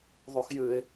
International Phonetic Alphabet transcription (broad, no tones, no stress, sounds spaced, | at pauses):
ðˤ u x j ɨ ɪ̯